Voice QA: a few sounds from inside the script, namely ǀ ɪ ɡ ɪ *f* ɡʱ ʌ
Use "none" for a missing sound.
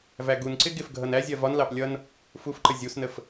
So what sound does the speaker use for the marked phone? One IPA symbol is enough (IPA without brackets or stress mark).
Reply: f